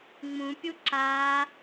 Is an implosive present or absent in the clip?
absent